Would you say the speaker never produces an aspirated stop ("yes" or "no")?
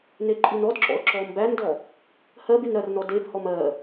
yes